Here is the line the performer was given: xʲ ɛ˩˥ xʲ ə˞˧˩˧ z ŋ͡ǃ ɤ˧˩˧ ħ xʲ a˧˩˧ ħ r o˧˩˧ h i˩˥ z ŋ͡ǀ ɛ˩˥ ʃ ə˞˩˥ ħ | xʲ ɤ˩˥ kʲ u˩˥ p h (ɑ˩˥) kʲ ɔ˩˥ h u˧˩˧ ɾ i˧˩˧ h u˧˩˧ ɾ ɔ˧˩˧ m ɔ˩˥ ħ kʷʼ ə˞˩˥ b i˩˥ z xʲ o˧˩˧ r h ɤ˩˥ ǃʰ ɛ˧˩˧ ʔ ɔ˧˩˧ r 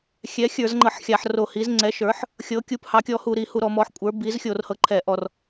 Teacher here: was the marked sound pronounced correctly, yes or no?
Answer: yes